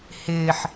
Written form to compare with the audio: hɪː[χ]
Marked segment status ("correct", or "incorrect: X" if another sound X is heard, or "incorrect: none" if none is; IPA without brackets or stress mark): incorrect: ħ